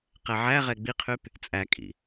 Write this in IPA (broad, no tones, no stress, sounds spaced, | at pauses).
q ɛ ʕ æ ʁ ɛ ɡ͡b i qʰ y p | t͡sʼ æ kʼ ḭ